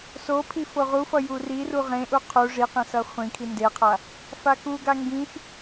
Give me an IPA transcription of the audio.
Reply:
sopʰi foʁufʌ juriru ʁẽʔu qʰu ʐi qẽsʌχʷĩkʰi ndeqʰa | fakuɡa ŋɡĩx

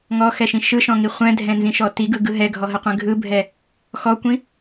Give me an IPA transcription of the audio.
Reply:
ŋɔxɛʃĩ ʃɯʃɔ̃ŋi χʷɛ̃dʱɛ̃nzĩʃɔ tiɡɯɡɯ ɦɛɡʱɔɦəqʷɛ̃ ɡʱɯbʱɛ | xɔkʷĩ

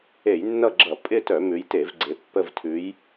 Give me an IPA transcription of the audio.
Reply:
e˧˩˧jnːʌ˦˨ɡ͡ǁʌ˧˩˧ pʼɪ˦˨tœ˧˩˧ mʉ˨˦jte˧˩˧vɡ͡ǀe˨˦ pːə˦˨vtʰʉ˨˦j

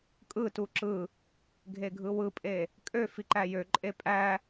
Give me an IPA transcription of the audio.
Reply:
kʼɯtu ǁɯ | ɡʱeɡʱɯwɯpʼe | kʼøfi ǃæjøǃʼe pʼæ

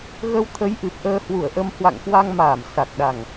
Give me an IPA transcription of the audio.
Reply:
ɣə˧wt̪ʰə˨˦jʔɨ˨˩p̚ ʔəː˧hwu˧˩ə̯ʔə˧m hwa̰˧˨ŋkwa˧ŋmaː˧˩m sa˨˩k̚ɗa˨˩ŋ

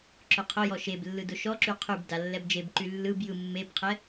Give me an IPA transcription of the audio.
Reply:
ǁʊqʰʊjɔ ʃeblːɯ dʊʃɔǁy qʰyb dalːɛbd͡ʒebǃy lːɯb jɯmːebqʰɛ

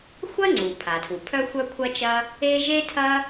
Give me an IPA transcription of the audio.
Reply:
xʷɐ˥ŋ͡ǀu˩pʰa˩tʰu˩ pʰœ˥xʷœ˥kʷʰɐ˥t͡ʃɐ˥ | e˥ ʒe˥tʰɐ˥

